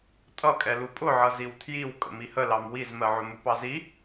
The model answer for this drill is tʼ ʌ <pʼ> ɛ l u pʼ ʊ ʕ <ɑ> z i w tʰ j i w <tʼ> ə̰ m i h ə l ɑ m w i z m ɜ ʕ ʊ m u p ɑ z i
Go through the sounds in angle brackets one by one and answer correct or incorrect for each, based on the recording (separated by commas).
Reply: incorrect, incorrect, incorrect